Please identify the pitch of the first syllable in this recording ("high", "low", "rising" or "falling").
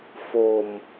low